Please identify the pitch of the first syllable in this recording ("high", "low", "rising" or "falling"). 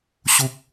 high